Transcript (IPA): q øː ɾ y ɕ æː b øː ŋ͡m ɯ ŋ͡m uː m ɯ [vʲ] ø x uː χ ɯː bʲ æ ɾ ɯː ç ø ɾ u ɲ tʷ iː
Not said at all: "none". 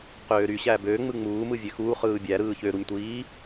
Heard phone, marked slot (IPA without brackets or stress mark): vʲ